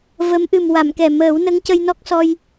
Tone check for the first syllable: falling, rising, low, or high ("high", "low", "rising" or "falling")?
rising